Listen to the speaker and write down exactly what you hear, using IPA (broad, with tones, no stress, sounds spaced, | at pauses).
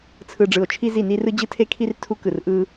t͡sʰ ɯ˧ ɖ͡ʐ ɯ˧˩ o̯ t͡ʃʰ i˧ z i˧˩ n i˧ r ɯ˧ d͡ʑ ɯ˧ tʰ e˧ kʰ i˧ r tʰ u˧ k ɯ˧˩ r ʔ ɯ˧